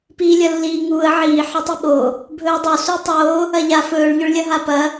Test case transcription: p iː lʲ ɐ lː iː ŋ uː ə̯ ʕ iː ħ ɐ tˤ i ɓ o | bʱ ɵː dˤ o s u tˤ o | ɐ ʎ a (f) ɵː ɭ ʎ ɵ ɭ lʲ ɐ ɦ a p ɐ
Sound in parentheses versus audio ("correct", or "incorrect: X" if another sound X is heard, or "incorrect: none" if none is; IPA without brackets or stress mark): correct